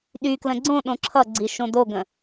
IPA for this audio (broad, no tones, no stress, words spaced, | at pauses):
ɗyklə̃ ɡ͡ǀõ ɗõǁʰʌɡ͡ǀi ʃõdoɡə̃